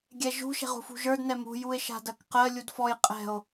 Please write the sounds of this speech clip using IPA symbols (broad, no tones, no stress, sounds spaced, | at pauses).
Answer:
ɡʲ ɛ ʒ ṳ ʃ ɛ̤ ʁ ṳ f ṳ ʒ ə˞ d n ɛ m ṳ j u e̯ ʃ a̤ d ɜ k q ɜ lʲ u d f ɔ j qʼ ɛ̤ o̯